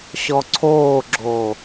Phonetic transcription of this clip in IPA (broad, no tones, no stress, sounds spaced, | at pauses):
ɕ ɔ ǀʰ oː ɡ͡ǁ o